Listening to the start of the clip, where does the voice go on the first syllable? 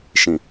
low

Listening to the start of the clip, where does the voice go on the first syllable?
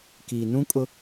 low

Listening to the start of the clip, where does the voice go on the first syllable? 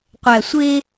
low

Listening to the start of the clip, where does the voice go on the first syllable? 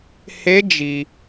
rising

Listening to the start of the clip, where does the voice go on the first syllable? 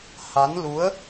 rising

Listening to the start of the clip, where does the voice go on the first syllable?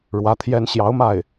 rising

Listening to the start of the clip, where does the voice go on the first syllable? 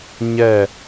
falling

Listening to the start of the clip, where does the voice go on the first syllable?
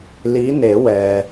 rising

